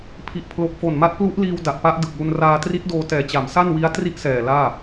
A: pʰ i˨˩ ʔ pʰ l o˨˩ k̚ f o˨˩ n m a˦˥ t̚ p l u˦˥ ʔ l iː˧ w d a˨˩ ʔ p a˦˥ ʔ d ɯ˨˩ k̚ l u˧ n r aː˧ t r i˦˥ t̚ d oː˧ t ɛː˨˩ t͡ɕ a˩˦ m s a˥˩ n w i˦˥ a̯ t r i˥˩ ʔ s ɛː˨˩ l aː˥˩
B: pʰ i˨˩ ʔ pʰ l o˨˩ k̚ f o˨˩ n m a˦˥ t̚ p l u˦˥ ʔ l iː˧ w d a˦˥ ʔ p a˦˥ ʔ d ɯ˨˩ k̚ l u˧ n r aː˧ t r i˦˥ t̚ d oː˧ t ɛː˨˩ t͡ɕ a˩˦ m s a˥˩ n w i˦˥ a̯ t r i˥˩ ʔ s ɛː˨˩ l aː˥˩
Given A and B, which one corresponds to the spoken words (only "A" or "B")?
A